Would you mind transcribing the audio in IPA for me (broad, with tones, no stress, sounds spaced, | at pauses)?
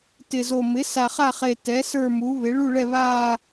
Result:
t ɪ˨˩ z o˨˩ m ɪ˩˥ s a˨˩ χ a˦˨ χ e˨˩ t ɛ˩˥ s ə˞˦˨ m u˩˥ β ɪ˩˥ ɭ u˦˨ ɭ ɛ˦˨ β aː˦˨